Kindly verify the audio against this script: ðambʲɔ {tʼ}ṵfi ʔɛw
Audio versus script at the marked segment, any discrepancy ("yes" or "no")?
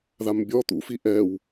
yes